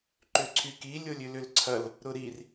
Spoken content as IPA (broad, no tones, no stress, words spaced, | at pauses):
ǃʏǀʰyki lʲolʲʏlʏlǀʰɐl | ɾʊɾir